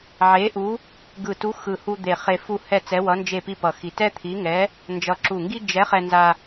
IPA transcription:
ʕ e˧˥ ʔ u˧˥ | ɡ ɯ˧˩ t u˧˥ x ɯ˧˩ h u˧ d̪ e˧˩ χ e˧ f u˥˧ h ɛ˥˧ t͡s ɛ˧˥ w ʌ˧˥ n d͡ʒ e˥˧ p i˥˧ p ʌ˧˩ x i˧˩ t ɛ˥ t̪ʰ i˧˥ ŋ ɛ˧˥ | n d͡ʒ ʌ˧˩ ǁ u˧˩ ŋ ɡ i˥ d͡ʒ ɛ˧˥ χ ɛ˧ n z a˧

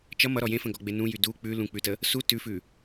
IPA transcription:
t͡ʃ ʌ m ʌ ɾ ɔ j ẽ f ə̃ ɡ ɔ ɡ͡b e n ũ j y d u k͡p ʉ l ũ k͡p ʉ t ə | s u t ʉ f ʉ

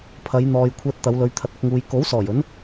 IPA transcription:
pʰ ɐ˨˧ j n̪ ɔː˧ j kʷʰ ɛː˧ t̚ t̪ ɐ˨˧ w l ɵ˨˧ ɥ t̪ʰ ɐ˧ t̚ ɐ˨˥ k̚ ŋ uː˧ j k o˨˥ w s ɔː˨˩ j ɵ˨˥ n

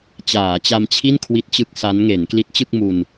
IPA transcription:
t͡ɕ aː˩˦ t͡ɕ a˧ m t͡ɕʰ i˥˩ n kʰ w i˦˥ t̚ t͡ɕ ɯ˦˥ k̚ s a˦˥ n ŋ e˩˦ n k l i˦˥ t̚ t͡ɕ ɯ˥˩ k̚ m u˧ n

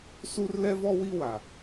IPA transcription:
s u˦ r l ɛ˦ v ɔ˦ w i˦ w a˨

